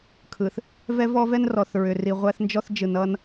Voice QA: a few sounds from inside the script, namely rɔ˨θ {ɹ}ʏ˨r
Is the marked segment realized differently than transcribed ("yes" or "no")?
no